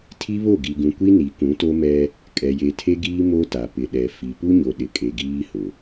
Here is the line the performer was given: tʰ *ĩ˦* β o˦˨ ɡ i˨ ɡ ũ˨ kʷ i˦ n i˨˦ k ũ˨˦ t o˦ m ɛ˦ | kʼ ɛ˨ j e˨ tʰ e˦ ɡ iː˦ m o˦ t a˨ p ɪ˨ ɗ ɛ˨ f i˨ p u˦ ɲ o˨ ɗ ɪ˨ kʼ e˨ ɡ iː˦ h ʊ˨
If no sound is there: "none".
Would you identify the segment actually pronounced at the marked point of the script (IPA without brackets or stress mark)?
i˦